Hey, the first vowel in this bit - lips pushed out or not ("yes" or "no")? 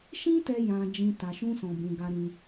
no